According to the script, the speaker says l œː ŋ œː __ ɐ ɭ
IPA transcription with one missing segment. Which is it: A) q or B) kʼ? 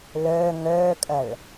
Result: B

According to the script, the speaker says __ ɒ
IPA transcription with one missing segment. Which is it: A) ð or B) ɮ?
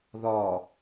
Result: A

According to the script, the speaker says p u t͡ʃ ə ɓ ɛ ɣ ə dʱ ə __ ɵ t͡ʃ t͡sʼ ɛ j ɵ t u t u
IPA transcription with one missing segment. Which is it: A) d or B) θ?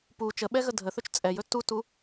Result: B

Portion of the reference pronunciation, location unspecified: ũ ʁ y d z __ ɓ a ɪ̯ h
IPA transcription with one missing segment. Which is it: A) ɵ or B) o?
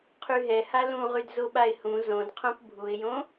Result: B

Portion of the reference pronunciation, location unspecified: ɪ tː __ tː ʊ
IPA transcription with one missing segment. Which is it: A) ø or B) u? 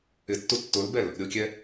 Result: B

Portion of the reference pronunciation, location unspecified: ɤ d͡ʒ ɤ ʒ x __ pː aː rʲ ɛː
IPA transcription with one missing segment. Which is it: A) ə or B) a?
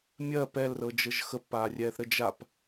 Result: A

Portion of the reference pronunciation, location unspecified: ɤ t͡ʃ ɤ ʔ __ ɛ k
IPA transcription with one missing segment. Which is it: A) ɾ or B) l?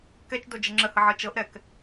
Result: A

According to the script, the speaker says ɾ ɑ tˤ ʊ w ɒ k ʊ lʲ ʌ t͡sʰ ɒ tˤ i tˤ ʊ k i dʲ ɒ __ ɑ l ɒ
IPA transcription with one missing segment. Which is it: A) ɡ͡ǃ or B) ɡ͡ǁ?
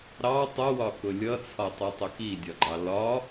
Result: A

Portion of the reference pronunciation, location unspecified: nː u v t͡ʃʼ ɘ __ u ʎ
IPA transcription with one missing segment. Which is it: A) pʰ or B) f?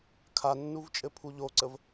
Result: A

